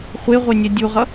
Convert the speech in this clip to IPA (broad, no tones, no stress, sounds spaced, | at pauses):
χʷ e ʁʷ e nʲ ɛ dʲ u ʁ ʌ